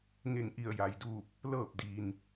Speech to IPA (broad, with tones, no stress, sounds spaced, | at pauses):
ŋ e˧˩ ŋ ʔ i˧˩ ə̯ j a˩ j d uː˧˩ p̚ | l ɤː˧˩ p̚ d iː˩ n